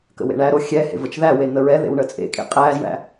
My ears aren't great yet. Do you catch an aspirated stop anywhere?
no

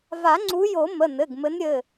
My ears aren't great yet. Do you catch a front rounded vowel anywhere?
no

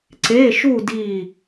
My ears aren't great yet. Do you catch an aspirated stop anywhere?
no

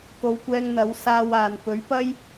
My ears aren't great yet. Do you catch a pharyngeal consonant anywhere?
no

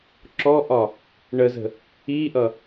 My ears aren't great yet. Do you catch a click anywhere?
yes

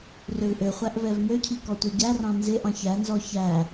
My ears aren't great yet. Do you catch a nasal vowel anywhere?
yes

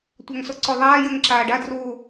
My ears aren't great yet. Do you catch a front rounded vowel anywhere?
yes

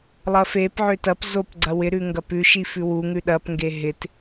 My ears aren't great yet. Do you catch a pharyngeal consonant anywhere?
yes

